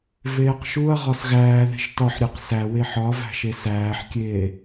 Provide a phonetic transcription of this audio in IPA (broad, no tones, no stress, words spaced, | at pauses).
veːqʃuɐ̯ ʁɒsɣæːðe̤ʃ tɒħɾʲeq sæwe ħɒvæ̤ʃe sæːħkʲeː